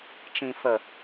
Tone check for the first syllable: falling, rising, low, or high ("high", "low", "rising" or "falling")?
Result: low